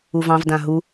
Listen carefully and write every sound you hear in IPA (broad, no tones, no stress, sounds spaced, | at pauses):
u v ɑ̃ v d ã ɦ u